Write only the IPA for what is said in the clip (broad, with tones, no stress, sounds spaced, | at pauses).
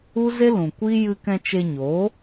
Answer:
u˦ z e˦ l ũ˨ kʷ i˦ j ɨ˧ k ɛ̃˧ t͡ʃ e˧ ɲ oː˨˦